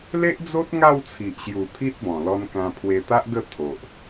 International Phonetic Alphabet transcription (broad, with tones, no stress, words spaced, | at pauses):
le˦ʔd͡zo˦t̚ ŋa˥˧wt͡sʰi˨ʔɕju˨˩ t̪ʰi˦t̚bɔ̃˨˩lɔ˧nkã˧ pʰwe˧t̪a˦ʔ ɡə˥˧t̪ʰo˨ʔ